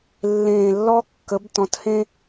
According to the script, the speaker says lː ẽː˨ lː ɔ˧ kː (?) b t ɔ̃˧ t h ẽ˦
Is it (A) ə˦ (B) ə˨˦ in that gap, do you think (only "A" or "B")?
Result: B